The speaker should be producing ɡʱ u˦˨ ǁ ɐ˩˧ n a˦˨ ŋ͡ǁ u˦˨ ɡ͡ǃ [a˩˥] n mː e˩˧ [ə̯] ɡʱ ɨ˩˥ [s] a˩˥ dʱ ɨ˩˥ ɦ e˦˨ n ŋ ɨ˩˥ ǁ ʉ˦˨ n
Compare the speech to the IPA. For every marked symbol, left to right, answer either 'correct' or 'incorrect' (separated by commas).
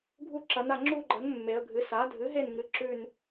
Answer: incorrect, correct, correct